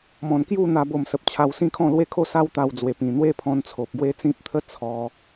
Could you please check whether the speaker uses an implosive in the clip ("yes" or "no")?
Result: no